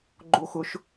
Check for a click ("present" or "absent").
present